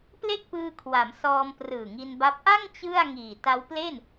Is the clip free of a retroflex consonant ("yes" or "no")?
yes